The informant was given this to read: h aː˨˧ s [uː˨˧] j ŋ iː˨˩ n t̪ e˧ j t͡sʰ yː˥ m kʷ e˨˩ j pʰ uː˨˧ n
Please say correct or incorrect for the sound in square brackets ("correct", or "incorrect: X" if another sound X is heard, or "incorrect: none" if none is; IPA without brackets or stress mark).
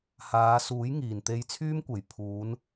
incorrect: uː˨˥